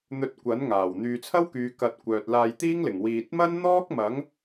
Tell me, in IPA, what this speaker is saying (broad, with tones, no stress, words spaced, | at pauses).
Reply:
n̪ɵ˧t̚ kʷɐ˨˥nŋaː˨˩w n̪yː˨t͡sʰɐ˥wkyː˨˧ kɐ˧t̚ kʷœː˨t̚laː˧jt̪iː˥ŋlɪ˨˩ŋ wiː˨t̚mɐ˥n n̪ɔː˥k̚mɐ˨˥ŋ